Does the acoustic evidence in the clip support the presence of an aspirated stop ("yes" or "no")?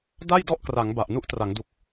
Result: no